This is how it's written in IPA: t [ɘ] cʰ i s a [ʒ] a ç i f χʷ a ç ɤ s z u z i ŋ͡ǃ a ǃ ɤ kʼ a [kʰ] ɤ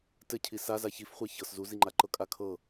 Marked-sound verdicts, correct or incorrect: correct, incorrect: z, correct

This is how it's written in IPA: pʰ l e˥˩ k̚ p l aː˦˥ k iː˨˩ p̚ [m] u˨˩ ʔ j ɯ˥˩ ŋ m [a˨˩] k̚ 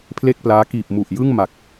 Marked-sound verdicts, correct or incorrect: correct, correct

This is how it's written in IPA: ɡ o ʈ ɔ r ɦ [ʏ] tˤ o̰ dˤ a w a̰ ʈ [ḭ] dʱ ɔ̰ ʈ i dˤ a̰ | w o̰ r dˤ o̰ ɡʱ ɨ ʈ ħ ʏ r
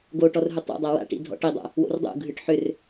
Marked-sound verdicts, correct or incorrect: correct, correct

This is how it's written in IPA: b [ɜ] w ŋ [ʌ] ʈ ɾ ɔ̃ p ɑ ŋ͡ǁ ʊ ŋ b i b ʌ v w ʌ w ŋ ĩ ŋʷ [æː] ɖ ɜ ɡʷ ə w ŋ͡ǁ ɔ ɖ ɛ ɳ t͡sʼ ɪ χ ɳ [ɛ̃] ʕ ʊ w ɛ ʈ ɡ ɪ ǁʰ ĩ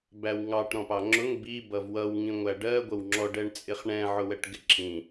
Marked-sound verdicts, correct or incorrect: incorrect: æ, incorrect: ɑ, incorrect: æ, correct

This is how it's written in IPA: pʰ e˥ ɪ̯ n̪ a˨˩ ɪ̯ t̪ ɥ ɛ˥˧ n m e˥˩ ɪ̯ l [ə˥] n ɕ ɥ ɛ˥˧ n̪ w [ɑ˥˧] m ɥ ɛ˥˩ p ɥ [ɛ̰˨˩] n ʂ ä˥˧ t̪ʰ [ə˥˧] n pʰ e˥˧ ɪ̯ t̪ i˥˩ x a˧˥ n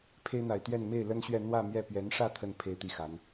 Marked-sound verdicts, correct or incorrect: correct, incorrect: ä˥˧, incorrect: ɛ˧˥, correct

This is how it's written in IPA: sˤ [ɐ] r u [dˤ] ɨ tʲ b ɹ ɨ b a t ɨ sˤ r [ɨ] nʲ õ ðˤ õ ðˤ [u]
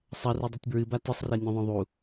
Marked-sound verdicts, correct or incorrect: correct, correct, incorrect: e, correct

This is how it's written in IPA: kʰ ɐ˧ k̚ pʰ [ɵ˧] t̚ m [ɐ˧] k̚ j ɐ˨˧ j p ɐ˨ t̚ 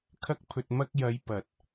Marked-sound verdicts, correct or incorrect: incorrect: ɵ˨, correct

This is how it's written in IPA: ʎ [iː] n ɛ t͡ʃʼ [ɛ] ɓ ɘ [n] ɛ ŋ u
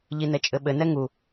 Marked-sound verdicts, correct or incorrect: incorrect: i, incorrect: ɘ, correct

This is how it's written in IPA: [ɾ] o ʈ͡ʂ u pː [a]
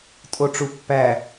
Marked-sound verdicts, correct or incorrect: incorrect: tʼ, incorrect: æ

